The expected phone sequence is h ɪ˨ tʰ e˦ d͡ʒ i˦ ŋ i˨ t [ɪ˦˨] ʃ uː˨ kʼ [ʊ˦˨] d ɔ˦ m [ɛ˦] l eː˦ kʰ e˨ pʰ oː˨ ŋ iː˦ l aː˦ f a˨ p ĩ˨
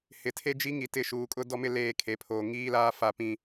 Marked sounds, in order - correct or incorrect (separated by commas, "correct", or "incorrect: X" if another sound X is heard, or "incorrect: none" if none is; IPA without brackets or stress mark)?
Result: correct, incorrect: ʊ˦, incorrect: ɪ˦